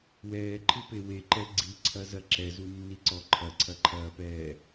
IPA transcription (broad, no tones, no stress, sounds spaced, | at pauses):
w ɛː ǃʰ ɨ p e w e ǃ ɛ ɡ͡ǀ i ǀʰ ɐ z ɐ ǁ ɛ z u nː i ǀ ɔ ǃʰ ɐ ǀʰ ɐ ǃʰ ɐː p ɛː